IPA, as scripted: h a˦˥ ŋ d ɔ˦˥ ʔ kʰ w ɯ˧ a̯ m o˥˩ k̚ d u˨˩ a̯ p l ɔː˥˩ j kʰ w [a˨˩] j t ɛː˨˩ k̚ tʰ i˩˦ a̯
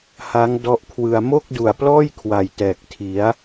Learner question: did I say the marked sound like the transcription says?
yes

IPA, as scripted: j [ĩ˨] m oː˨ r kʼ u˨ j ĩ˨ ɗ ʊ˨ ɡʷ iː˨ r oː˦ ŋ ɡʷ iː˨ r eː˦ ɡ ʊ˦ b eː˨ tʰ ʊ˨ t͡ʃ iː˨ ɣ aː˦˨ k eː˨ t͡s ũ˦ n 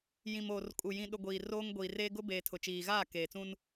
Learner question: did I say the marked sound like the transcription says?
yes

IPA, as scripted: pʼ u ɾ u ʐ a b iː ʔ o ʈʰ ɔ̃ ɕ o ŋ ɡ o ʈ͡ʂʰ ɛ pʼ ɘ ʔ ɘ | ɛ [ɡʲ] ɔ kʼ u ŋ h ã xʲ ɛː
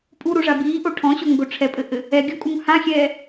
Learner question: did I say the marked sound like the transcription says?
yes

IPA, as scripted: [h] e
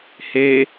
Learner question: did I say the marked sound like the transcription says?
yes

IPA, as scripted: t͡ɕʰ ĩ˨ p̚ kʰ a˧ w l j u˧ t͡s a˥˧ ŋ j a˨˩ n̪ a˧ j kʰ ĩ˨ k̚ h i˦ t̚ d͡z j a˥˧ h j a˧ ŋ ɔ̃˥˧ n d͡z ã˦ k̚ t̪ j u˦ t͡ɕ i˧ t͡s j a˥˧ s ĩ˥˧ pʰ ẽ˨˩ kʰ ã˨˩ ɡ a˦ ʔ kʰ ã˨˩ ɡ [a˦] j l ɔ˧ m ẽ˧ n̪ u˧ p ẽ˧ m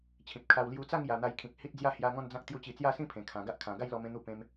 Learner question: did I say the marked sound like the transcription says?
no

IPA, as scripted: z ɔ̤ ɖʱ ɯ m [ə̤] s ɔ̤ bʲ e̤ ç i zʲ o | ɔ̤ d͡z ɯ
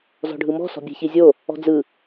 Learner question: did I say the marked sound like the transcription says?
no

